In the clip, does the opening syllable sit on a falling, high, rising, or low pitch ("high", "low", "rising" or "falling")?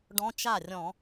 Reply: rising